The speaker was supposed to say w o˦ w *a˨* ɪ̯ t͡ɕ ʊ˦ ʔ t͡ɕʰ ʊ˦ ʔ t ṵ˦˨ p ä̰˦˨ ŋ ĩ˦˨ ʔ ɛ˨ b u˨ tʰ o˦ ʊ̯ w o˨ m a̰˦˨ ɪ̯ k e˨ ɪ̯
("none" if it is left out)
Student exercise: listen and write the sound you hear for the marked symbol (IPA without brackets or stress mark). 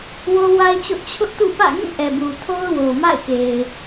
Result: a˦